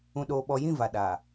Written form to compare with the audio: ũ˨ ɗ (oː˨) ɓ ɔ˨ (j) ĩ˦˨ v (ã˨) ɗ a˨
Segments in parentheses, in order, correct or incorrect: correct, correct, incorrect: a˨

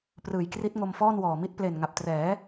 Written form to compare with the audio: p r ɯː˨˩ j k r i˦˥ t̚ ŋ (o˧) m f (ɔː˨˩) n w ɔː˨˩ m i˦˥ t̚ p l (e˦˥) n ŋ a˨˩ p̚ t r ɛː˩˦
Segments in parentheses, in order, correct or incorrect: correct, incorrect: ɔː˥˩, incorrect: e˨˩

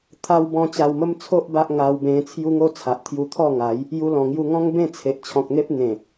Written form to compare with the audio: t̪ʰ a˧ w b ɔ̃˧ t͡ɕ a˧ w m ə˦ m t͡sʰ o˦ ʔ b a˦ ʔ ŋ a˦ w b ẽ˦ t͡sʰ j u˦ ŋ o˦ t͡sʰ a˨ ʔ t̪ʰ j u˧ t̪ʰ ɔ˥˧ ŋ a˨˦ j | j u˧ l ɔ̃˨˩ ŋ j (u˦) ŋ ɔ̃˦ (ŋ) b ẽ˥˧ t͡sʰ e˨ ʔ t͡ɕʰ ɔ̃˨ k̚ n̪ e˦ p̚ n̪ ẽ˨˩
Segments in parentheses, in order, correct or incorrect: incorrect: u˧, correct

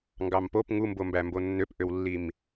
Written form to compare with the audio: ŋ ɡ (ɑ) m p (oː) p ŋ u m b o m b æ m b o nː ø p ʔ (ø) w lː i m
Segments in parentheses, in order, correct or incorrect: correct, incorrect: o, correct

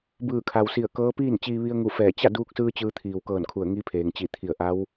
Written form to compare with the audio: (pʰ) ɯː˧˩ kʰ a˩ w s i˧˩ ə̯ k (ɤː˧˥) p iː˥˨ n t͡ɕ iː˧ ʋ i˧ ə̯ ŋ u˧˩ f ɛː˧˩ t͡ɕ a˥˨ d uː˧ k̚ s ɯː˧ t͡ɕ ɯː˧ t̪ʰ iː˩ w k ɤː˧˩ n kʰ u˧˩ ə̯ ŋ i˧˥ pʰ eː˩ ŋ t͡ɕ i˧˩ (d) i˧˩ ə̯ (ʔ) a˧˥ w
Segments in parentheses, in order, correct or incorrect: incorrect: b, correct, incorrect: t̪ʰ, correct

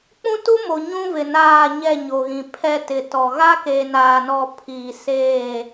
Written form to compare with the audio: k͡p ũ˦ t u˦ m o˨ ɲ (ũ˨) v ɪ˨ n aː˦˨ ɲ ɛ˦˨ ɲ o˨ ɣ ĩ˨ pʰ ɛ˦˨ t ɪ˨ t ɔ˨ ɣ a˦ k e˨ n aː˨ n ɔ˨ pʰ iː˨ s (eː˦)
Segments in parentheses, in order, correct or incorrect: incorrect: ũ˦, incorrect: eː˦˨

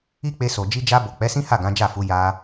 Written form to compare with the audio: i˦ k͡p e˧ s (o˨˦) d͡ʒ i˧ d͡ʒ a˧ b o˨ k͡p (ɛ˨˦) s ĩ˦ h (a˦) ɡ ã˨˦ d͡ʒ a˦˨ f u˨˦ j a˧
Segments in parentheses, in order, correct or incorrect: incorrect: o˨, correct, incorrect: a˦˨

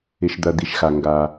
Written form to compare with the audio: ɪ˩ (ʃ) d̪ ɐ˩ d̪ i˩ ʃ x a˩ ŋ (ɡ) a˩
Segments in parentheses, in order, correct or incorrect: correct, correct

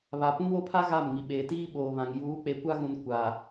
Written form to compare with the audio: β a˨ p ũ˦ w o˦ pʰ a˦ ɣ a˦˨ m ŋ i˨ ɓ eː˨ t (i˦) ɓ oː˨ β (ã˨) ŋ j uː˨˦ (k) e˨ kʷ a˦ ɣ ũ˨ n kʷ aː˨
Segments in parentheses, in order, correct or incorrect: incorrect: iː˦, correct, incorrect: k͡p

